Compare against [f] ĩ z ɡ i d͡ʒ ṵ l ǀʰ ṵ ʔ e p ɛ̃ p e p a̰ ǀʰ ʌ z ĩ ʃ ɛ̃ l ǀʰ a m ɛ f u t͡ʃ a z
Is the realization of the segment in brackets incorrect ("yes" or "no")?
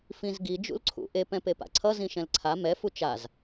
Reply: no